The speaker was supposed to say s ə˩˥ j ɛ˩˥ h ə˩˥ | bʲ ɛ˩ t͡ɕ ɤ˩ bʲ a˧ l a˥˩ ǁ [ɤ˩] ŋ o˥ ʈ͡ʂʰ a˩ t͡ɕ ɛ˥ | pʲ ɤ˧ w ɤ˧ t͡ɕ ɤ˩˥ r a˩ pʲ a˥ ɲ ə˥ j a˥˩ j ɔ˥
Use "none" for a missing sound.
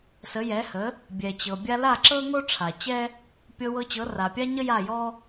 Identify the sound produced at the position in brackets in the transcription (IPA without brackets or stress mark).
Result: ɤ˥